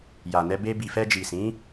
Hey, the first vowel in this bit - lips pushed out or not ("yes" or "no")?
no